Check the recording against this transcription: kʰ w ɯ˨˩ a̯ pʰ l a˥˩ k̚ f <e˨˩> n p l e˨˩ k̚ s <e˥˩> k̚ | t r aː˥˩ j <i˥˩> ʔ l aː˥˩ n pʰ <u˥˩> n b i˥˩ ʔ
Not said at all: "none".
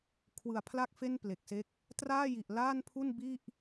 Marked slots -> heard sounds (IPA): e˥˩, e˦˥, i˨˩, u˥˩

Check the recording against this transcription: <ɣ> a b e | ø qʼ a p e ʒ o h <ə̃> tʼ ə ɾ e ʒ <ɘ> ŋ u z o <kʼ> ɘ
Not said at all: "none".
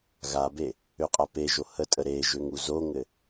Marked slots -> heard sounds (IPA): ɣ, ə, ø, ŋ

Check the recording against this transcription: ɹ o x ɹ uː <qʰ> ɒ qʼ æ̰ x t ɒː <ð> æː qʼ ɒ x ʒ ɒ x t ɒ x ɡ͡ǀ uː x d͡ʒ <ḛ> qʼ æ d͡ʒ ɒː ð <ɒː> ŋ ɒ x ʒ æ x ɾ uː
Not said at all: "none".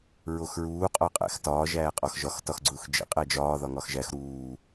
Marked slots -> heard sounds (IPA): qʼ, ʒ, ḛ, ɒ

